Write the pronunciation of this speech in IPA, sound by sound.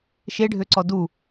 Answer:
ʃ e ɖʱ ø ǀ ɔ d u

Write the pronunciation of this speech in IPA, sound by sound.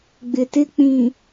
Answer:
ɡ͡b ɪ˨ t ɪ˦ k͡p ĩ˨

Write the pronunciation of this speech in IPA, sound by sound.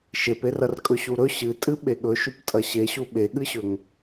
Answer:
ʃ e p e r ɐ r kʼ ɵ ɕ u ɾ ɵ ɕ ɨ tʼ ɨ ɓ e ɠ ɵ ʃ ʉ p tʼ ɐ ɕ e ɕ u ɓ e ɠ ɨ ɕ ɵ ŋ

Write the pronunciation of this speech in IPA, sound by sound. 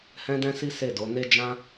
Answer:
h ɛ̃˦ d ɛ̃˦ s i˦ s e˦˨ d o˨˦ n e˦ d͡ʒ ã˦

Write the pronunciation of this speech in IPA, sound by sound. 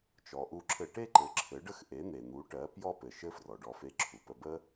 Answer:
t͡ʃ ɔ˩ ʔ u˧ ǁʰ ɘ˧ ʈ e˥ ǃ ɘ˩˥ ǁʰ ɘ˩˥ ɖ ə˥ x ʔ e˩˥ n̪ e˩ n̪ u˩˥ ʈ ɜ˩˥ p j ɔ˥ p ɘ˩ ʃ ɘ˥ f r ɔ˩ ɖ ɔ˧ f e˧ ǁʰ u˩ p ə˧ b ə˥

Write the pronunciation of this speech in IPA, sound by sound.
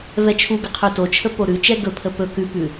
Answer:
v ɛ t͡ʃʰ u ɡ ə qʰ ʉ t o t͡ʃʰ ə p o ɾ ʉ t͡ʃ ɛ ɡ ɵ pʰ ə p ɵ k ʉ p ʉ

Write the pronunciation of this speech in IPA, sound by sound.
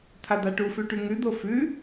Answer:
t̪ʰ a d̪ a ʈ u f ʉ ʈ ʉ ŋ ʉ d̪ o f ʉ

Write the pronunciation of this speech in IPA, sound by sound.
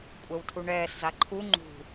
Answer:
kʷʼ ɛ w tʰ u ɳ ɛː s z a ǃʰ u ŋ͡ǃ ṳ

